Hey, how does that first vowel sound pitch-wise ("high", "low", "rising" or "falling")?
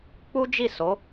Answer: high